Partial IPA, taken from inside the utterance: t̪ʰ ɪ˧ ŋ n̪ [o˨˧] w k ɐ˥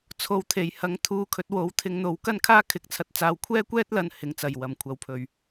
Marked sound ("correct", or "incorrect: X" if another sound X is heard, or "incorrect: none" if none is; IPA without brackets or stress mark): correct